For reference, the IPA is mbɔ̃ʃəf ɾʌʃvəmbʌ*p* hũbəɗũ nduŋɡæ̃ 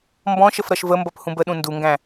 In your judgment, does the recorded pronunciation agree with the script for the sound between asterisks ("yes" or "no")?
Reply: yes